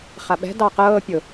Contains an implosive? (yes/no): yes